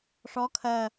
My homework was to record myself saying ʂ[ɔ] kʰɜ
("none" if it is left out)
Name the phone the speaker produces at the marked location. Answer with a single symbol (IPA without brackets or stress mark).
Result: ɔ